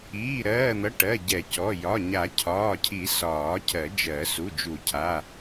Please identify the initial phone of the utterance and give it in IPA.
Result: iː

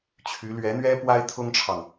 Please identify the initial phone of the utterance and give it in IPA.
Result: t͡ɕʰ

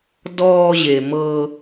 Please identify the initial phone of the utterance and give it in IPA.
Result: d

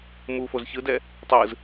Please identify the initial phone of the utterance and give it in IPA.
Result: m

